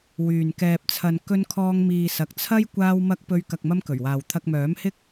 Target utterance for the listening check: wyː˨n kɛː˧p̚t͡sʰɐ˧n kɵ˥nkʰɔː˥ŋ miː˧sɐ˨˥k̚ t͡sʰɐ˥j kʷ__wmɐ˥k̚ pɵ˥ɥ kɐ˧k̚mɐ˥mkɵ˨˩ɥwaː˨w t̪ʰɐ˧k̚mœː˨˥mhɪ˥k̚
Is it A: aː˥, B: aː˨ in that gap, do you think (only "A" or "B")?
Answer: A